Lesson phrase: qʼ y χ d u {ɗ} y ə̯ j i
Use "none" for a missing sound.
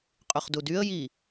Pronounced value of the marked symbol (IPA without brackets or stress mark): d